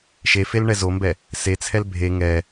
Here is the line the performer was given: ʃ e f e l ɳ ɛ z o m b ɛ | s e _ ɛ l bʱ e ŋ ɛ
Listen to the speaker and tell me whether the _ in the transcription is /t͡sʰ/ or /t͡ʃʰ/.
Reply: t͡sʰ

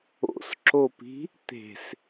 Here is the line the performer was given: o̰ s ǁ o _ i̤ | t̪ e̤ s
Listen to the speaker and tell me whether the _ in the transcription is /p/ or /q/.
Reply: p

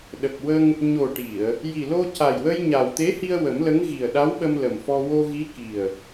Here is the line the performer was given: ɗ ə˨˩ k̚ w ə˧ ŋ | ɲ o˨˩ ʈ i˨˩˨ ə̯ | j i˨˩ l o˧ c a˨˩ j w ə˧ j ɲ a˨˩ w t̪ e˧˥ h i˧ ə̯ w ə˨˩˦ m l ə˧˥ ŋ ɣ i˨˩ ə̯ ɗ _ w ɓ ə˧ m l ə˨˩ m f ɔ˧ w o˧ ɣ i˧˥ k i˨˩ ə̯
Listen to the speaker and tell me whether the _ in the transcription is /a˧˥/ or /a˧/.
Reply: a˧˥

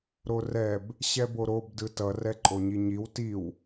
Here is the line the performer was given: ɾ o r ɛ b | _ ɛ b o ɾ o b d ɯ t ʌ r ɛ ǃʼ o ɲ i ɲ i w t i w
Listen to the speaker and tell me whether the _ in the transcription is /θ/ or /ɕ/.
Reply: ɕ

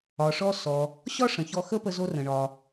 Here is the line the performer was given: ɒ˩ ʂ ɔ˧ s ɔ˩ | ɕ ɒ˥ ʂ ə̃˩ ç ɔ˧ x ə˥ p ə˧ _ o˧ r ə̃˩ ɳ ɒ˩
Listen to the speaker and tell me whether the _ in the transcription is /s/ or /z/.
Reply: z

